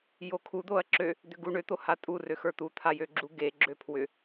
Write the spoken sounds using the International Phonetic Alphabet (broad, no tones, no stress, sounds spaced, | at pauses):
j o kʰ u d̪ o ɐ̯ ǁ ø | d̪ ʏ ɡ u ɳ ø t̪ o h a tʼ u r ø x ə˞ t̪ u t̪ʰ a j ø ɡ͡ǁ u ɡ e ɡ͡ǁ ø pʰ w ʏ